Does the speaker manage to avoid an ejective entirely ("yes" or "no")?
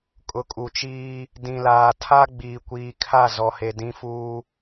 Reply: no